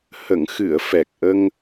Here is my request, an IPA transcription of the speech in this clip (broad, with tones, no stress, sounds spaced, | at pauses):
h ə˨˩˨ ŋ x ɨ˨˩˨ ə̯ f ɛ˨˩ k̚ ʔ ə˧ ŋ